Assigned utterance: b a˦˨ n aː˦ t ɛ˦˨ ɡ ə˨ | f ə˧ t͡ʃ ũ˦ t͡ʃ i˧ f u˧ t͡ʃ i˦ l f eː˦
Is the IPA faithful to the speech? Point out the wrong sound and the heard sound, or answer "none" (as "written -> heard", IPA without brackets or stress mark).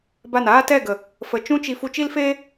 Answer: none